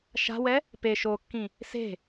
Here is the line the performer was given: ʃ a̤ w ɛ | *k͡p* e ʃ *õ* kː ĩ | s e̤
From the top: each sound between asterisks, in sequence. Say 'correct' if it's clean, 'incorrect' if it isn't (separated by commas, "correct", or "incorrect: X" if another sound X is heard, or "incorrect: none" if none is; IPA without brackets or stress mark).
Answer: incorrect: p, incorrect: o